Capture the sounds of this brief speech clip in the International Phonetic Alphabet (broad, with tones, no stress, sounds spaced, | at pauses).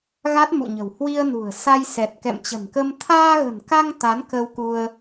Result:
ɣ a˦˥ t̚ m ṵ˧˨ ɲ ə̤˨˩ w h w i˧ ə̯ n ṳ˨˩ ə̯ s a˧ j s ɛ˨˩ t̚ k ɛ̰˧˨ m t͡ɕ ə̤˨˩ n k ə˧ m t̪ʰ aː˧ ɣ ə̤˨˩ n k a˧ ŋ t̪ a˨˦ n k ə˧ w k u˧ ə̯